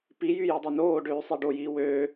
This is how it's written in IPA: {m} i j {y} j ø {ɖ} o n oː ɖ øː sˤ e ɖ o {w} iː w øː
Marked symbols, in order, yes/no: no, yes, no, no

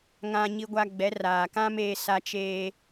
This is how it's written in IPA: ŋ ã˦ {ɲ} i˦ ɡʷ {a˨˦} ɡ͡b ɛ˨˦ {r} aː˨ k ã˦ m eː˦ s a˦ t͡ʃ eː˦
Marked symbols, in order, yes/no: yes, no, yes

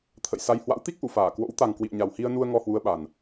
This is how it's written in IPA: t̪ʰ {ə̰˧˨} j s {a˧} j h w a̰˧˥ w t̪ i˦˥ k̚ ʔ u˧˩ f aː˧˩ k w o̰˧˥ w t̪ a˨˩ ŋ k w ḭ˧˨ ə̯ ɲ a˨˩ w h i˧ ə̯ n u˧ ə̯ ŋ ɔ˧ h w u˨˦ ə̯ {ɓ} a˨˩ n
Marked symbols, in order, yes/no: yes, yes, yes

